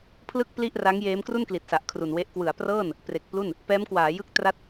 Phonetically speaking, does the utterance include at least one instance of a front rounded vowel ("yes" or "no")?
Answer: no